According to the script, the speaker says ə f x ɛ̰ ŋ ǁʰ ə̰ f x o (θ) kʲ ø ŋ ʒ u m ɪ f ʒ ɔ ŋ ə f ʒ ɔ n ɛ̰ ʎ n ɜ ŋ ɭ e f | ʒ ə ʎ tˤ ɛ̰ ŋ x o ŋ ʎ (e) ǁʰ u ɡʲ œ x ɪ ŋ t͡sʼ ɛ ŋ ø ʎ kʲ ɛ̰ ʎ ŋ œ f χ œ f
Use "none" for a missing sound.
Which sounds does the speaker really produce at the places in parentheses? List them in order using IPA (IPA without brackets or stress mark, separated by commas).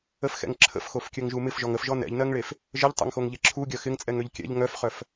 f, e